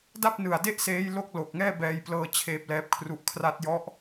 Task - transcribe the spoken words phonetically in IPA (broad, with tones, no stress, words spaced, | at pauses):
da˥˩p̚nɯ˨˩a̯de˥˩ʔseː˦˥j lo˥˩k̚ lo˨˩k̚ŋɛː˥˩ bɛː˧jplɤː˧ t͡ɕʰeː˦˥p̚lɛː˦˥p̚kʰru˦˥ʔ kʰra˦˥t̚jɔ˦˥ʔ